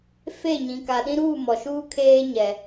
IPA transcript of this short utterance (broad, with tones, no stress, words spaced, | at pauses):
fe˦˨ ɲĩ˨ ka˨ɗĩ˦ɾuː˦˨ mɔ˨ʃuː˦ kʰeː˦ɲɛ˨